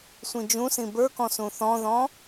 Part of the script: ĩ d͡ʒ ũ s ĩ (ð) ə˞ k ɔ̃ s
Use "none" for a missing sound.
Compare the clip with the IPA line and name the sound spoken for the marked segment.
b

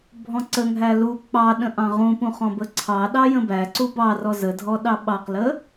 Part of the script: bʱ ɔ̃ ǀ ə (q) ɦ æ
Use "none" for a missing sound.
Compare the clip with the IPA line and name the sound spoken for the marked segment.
ŋ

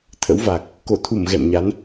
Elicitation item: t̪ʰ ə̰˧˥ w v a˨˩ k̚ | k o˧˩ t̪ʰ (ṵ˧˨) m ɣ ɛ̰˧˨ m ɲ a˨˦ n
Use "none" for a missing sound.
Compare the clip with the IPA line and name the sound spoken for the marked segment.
u˧˩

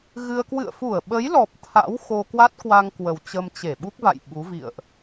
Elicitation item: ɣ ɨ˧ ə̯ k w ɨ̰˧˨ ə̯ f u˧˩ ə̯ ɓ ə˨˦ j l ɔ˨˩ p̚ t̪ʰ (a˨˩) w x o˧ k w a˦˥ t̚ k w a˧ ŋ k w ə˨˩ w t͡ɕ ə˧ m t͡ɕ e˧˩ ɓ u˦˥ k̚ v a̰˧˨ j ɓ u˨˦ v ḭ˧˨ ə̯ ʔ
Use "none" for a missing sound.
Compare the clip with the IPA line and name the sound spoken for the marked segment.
a̰˧˥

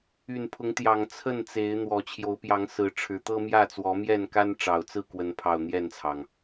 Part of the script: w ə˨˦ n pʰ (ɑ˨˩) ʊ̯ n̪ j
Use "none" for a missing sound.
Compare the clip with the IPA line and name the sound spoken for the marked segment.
ɑ˨˩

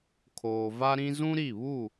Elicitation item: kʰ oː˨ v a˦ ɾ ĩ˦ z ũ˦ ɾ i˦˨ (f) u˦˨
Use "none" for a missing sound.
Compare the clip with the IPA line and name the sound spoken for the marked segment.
β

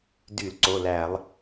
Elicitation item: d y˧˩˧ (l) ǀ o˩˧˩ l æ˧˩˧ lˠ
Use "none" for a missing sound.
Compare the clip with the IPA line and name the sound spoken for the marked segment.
l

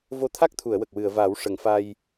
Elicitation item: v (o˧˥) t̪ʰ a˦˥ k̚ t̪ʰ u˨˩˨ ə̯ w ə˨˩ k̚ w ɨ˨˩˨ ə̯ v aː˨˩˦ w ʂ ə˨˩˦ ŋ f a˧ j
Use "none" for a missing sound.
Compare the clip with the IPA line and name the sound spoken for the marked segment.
o˧˥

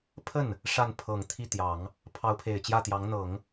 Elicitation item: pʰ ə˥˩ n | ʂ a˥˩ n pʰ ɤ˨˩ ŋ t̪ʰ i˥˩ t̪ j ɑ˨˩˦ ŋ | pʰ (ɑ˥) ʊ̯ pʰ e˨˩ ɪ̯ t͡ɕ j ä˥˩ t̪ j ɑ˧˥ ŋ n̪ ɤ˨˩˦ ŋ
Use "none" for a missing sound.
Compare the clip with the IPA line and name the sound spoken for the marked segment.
ɑ˧˥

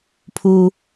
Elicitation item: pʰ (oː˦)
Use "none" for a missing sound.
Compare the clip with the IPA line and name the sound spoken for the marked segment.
uː˦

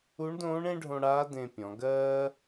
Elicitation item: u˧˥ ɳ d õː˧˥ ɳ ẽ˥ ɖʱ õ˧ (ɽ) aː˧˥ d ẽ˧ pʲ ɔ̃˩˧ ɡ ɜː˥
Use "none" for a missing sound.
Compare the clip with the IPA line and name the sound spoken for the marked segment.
ɽ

